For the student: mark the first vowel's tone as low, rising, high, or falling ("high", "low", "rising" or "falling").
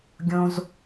high